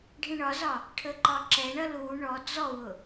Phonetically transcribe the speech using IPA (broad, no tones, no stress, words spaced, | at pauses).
ɖʱĩɳɒzɒ | ʈʰəǃɒǁɛɳʌ lu ɳɔ d͡zɔwʊ